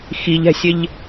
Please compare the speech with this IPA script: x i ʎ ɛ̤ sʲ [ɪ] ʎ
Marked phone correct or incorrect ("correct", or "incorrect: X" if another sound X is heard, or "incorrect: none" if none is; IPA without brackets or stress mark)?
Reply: correct